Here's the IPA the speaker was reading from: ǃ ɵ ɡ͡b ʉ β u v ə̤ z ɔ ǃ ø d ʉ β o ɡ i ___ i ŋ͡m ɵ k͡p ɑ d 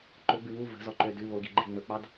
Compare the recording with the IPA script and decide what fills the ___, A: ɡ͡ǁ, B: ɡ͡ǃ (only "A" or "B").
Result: B